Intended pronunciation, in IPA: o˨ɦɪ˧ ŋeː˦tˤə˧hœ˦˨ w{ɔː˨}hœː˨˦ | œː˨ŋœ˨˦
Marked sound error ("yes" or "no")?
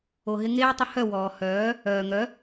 no